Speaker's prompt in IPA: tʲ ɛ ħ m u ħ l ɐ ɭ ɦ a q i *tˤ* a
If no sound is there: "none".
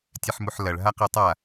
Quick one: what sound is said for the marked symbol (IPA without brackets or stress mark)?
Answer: tˤ